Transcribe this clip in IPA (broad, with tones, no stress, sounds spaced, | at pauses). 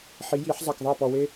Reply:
ħ i˩˥ j i˨˩˦ ħ zˤ a˨˩ k ðˤ a˥˩ p ɔ˨˩ w e˦